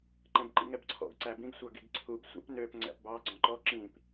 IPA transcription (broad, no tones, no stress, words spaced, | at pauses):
ǃɛ̃bǃḭŋɛbǀʰɔ̰ɡ ǀæbĩɡ sʷɑɡiɡǀʰub sʷæ̰pnøp ŋ͡ǀæ̰pbɑ ɡ͡ǀɔ̃ǃɔ ǁĩp